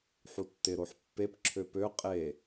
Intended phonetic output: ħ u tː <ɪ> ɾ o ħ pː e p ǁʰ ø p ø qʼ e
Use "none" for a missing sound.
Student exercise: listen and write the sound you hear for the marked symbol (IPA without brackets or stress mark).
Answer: ɪ